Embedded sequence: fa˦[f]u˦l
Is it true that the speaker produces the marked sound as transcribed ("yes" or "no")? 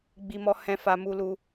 no